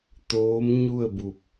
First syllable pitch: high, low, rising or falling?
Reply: rising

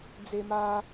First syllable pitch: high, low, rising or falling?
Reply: high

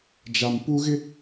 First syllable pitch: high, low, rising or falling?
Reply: low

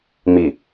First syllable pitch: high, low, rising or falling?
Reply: low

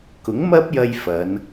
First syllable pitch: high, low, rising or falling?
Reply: rising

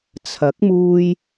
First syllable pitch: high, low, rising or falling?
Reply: rising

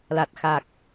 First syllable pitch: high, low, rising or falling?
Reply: low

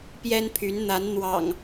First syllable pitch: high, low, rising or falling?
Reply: high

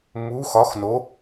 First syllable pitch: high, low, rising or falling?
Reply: rising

